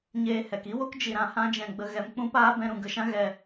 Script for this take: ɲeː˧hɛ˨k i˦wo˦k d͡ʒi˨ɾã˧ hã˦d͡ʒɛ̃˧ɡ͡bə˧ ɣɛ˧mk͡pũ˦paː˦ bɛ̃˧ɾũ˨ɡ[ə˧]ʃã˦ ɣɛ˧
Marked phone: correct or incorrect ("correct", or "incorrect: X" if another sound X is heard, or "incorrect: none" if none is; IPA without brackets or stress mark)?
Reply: correct